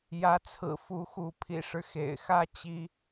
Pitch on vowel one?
rising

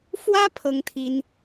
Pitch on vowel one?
high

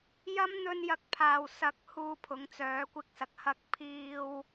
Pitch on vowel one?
high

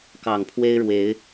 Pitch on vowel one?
low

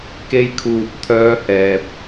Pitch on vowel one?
high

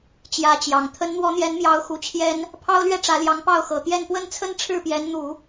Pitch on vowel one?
rising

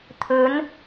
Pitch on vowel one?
rising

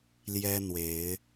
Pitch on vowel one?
high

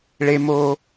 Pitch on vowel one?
low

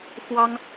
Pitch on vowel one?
high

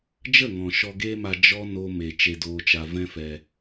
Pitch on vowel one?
falling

